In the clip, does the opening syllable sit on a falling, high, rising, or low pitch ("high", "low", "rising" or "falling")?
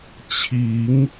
rising